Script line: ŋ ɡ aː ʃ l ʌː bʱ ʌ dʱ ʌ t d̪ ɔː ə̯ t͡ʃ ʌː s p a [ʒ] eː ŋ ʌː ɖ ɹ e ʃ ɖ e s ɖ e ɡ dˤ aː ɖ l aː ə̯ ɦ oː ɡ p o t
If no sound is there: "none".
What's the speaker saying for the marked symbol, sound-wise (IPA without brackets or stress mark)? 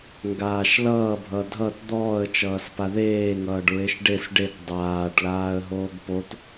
ð